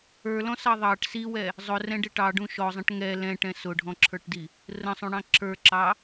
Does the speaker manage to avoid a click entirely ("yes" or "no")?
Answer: no